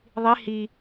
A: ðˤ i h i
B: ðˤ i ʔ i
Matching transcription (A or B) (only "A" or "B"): A